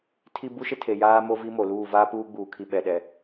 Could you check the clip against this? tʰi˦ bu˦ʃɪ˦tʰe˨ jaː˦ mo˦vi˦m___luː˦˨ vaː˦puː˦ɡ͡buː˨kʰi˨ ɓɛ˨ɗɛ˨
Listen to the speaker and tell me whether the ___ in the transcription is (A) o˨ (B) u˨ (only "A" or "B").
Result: A